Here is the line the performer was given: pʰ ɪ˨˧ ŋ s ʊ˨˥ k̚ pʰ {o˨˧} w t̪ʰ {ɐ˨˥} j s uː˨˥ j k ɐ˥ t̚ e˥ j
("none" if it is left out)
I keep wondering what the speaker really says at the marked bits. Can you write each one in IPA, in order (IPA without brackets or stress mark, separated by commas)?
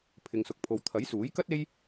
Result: o˨˧, ɐ˨˥